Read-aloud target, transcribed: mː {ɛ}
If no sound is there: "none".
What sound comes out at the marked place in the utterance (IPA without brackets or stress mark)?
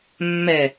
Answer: ɛ